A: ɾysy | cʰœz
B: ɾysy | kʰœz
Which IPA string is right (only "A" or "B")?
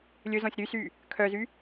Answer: B